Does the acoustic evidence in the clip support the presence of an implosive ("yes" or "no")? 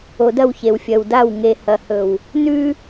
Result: no